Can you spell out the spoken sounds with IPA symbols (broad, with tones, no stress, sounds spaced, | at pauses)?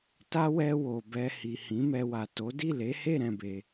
t a˦ w ɛ˧ w o˨ b ɛ˧ h i˨ h ĩ˨˦ m ɛ˧ w a˨ t o˨˦ d i˦˨ l e˨˦ h e˦˨ ɾ ɛ̃˧ b e˧